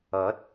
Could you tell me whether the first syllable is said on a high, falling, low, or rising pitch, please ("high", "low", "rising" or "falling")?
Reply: rising